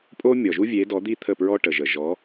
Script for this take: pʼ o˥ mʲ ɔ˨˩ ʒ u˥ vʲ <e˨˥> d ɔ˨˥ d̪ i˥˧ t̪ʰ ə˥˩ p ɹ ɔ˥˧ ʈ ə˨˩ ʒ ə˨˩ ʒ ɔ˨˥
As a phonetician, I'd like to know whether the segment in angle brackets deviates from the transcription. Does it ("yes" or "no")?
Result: no